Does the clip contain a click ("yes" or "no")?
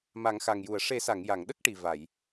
no